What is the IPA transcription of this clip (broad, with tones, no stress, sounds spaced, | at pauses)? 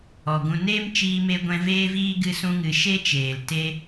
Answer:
ɔ˨ ɡ ũ˧ n eː˦ m t͡ʃ iː˨ m e˨ ɡʷ ɛ̃˨ v eː˧ v iː˧ ɡ ɨ˧ s ũ˧ ŋ ɨ˨ ʃ e˦ t͡ʃ eː˨ l t e˧